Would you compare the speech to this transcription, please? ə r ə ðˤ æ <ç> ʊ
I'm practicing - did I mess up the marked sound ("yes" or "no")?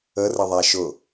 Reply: yes